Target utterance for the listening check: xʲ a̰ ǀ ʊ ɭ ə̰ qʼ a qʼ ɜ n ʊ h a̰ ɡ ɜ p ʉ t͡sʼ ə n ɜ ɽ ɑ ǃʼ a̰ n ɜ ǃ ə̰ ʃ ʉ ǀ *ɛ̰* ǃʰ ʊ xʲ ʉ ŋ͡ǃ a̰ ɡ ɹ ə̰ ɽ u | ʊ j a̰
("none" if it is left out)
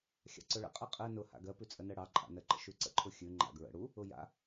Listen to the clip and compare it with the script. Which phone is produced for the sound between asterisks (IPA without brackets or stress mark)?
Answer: ə̰